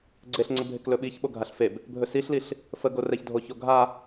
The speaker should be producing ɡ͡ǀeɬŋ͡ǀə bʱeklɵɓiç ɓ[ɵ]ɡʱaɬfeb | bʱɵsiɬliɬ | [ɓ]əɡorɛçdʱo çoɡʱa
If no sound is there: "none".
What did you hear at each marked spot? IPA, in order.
o, f

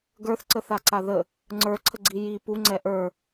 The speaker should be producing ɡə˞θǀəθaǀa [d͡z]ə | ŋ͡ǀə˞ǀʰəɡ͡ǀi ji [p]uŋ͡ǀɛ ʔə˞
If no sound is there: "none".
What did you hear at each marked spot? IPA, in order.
ð, p

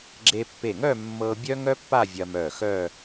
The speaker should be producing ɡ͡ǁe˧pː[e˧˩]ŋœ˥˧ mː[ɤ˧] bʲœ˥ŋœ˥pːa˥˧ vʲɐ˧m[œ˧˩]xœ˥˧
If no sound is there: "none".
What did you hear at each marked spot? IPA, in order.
e˧˩, ɤ˧, œ˧˩

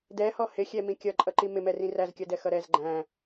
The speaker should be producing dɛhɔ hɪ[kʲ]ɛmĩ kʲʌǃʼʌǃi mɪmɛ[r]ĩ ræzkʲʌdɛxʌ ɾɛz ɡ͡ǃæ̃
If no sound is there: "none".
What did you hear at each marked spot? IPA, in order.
xʲ, r

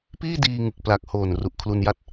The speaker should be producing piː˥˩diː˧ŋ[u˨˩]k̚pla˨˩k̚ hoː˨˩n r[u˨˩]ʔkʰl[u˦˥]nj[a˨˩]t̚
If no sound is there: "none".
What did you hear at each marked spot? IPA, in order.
ɯ˨˩, u˨˩, u˧, a˦˥

